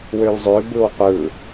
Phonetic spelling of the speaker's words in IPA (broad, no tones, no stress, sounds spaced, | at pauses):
w ø l zˤ ø b ɯ w qʷ ɯ